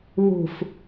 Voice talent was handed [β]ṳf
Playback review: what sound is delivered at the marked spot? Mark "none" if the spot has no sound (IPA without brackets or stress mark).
β